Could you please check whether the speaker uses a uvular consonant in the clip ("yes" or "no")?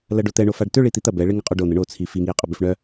yes